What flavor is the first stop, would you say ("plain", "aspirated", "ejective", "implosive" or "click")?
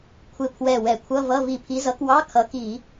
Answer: aspirated